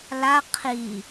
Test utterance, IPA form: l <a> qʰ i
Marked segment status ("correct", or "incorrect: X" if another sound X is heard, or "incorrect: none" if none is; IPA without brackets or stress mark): correct